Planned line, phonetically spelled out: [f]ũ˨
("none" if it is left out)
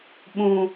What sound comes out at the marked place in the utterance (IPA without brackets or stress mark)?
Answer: ɓ